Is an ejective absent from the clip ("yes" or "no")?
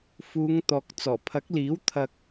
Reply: yes